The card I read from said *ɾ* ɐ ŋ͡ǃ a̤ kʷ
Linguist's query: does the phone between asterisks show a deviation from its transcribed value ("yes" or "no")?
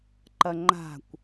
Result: yes